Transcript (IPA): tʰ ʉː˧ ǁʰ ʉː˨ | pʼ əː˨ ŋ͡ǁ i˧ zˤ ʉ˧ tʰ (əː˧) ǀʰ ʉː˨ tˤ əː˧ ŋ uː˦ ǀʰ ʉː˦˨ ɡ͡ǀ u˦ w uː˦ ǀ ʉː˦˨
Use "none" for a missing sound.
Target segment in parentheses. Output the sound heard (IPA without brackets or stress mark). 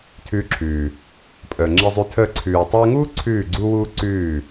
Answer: əː˧